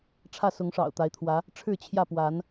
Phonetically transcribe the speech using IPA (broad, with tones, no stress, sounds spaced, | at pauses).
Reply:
ʈ͡ʂʰ ä˥˨ s ʊ˨˦ ŋ ʂ ɑ̰˨˩ ʊ̯ t̪ a˨˦ ɪ̯ t̪ʰ w ä˨˦ | ʈ͡ʂʰ ɻ̩˥˨ t͡ɕʰ j ä˥˨ p w a˨˦ n